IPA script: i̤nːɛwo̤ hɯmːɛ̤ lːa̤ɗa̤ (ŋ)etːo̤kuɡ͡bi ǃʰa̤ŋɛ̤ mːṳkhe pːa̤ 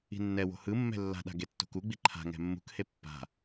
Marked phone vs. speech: incorrect: ɡ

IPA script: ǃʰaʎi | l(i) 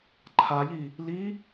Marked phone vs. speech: correct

